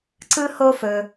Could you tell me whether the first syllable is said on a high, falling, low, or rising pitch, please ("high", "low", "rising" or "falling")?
high